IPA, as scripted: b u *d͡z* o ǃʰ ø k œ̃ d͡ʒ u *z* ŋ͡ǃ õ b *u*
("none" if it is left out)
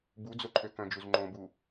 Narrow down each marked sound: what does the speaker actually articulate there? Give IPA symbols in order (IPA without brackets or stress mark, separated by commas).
d͡z, z, u